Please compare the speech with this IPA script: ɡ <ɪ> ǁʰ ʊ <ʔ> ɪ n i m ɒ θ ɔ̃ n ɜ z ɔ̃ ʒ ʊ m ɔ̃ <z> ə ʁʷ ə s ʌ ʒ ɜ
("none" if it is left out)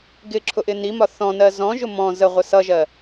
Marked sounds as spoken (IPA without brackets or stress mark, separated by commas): ɪ, ʔ, z